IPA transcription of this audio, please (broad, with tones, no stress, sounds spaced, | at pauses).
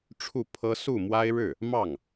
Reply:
ʈ͡ʂʰ u˥˩ pʰ ɤ˥ s u˥˩ m w a˥ ɪ̯ ɻ ɻ̩˥˩ | m ɑ˥˩ ŋ